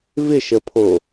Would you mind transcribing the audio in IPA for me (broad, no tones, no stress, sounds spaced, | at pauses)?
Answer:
v ɪ ʃ ə pʰ o